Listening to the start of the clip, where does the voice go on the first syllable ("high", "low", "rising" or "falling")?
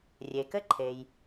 low